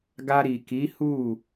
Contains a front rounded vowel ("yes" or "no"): no